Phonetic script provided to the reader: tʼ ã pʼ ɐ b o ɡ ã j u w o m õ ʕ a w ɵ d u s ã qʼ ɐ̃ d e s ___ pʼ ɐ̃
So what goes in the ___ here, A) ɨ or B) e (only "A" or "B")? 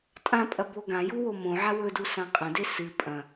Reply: A